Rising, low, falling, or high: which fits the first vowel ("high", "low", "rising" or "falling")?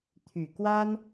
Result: low